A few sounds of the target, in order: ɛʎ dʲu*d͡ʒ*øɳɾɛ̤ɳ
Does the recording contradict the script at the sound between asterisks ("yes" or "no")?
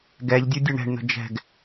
yes